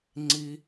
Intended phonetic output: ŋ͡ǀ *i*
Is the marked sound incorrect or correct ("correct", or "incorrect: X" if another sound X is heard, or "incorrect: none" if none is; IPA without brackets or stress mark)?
correct